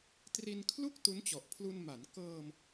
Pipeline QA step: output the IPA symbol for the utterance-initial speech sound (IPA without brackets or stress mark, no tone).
t